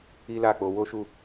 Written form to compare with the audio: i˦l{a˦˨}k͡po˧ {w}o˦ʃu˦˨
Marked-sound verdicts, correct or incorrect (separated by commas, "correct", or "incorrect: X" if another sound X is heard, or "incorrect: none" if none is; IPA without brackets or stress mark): correct, correct